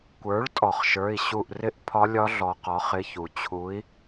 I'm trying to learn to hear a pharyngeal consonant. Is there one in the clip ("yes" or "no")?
no